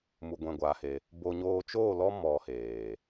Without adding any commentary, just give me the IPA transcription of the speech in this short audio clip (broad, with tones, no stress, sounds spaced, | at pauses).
m u˧ ɡʷ ɛ̃˧ ɡʷ a˧ h e˧ | b o˧ ɲ oː˧ t͡ʃ oː˦˨ l ɔ˦ m ɔ˧ h eː˨